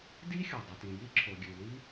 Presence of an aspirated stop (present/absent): present